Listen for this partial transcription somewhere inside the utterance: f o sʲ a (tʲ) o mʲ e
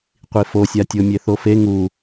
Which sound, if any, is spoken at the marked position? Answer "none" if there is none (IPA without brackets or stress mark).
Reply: tʲ